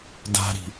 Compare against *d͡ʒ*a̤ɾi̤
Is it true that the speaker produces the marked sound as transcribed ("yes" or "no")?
no